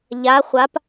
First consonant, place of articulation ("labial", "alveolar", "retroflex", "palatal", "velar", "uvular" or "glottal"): palatal